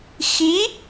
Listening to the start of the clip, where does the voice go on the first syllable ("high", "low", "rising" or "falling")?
rising